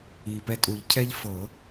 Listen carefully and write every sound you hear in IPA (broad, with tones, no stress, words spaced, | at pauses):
iː˨˩pɛ˥˨tʼu˨˩˦ʎ cʰɛ˦ʎfɤ˨˩˦